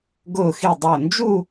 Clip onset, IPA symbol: ɡ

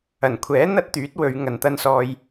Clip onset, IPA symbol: ɐ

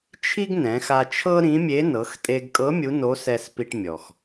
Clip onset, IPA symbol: t͡ʃʰ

